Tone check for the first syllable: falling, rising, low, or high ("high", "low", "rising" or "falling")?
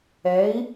rising